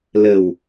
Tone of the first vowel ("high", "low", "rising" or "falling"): low